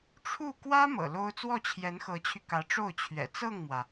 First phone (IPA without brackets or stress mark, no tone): ʈ͡ʂʰ